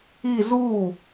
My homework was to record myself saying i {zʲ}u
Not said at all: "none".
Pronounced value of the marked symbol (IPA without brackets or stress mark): z